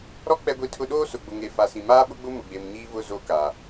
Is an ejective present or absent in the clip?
absent